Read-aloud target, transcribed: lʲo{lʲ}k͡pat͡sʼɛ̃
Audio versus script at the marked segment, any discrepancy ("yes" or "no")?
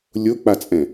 yes